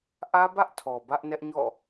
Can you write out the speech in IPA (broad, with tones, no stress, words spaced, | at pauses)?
ʔä˦bä˦ʔtʰɔ˨ bä˦ʔnɛ˦ʔɲɔ̰˦˨